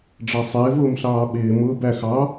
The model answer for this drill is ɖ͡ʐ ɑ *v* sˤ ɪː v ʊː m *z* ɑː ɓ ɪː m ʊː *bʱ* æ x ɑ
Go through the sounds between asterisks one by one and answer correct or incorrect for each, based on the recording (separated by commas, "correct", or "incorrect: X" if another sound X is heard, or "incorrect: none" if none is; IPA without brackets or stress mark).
incorrect: none, incorrect: ɬ, incorrect: b